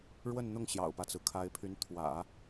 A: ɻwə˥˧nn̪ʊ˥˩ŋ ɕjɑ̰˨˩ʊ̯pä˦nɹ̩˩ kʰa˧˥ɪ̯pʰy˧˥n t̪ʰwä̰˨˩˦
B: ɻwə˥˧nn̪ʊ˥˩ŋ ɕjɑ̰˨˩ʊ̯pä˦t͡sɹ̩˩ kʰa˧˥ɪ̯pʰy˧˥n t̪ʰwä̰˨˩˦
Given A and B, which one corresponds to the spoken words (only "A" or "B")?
B